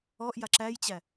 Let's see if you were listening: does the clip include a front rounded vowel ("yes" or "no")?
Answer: no